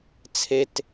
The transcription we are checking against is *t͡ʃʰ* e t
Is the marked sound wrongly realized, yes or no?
yes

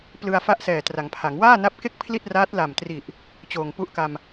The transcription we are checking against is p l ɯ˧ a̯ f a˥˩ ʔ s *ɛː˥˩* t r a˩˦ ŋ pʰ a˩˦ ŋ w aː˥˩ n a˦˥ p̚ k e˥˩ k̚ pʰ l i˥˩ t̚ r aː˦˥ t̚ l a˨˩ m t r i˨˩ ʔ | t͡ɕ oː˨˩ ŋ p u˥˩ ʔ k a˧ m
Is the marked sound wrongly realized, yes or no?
yes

